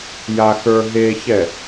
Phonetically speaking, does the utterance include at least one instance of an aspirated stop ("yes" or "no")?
no